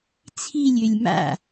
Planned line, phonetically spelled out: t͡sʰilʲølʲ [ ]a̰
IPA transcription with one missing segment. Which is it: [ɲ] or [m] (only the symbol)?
m